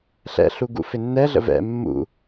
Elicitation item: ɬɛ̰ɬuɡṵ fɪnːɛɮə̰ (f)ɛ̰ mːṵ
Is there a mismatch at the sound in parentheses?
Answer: yes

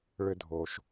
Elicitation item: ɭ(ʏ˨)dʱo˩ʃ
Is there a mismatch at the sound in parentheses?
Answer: no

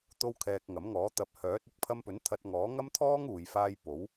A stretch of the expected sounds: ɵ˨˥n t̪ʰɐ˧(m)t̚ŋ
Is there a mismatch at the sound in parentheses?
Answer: yes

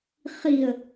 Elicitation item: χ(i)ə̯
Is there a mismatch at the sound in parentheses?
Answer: no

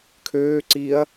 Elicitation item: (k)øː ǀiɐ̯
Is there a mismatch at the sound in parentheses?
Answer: yes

